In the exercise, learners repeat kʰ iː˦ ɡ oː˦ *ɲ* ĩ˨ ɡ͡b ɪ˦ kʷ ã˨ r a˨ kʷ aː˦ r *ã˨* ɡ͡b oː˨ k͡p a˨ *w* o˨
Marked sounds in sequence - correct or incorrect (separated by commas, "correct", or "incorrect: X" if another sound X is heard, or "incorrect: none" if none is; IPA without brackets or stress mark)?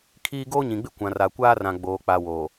correct, correct, correct